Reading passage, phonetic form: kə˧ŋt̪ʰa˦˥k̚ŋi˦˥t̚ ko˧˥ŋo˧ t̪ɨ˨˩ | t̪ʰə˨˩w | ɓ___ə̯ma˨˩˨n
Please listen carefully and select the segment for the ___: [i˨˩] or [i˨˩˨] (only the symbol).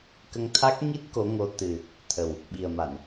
i˨˩